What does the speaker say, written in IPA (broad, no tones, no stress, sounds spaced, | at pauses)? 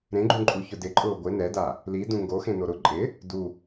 ɾ ẽ ɡ͡ǃ ũ ǃʼ u ç ʊ d ɪ ǃʼ ʊː ɡʷ ɪ n ɛ d a | l i d ũ ŋ ɡ o x ẽ n o ɾ ʊ ǃʼ ɪ | d u